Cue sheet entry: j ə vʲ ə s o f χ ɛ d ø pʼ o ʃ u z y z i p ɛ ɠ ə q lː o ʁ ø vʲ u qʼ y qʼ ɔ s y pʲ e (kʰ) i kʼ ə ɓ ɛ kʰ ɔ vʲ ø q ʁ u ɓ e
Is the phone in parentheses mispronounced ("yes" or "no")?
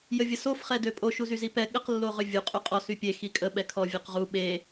yes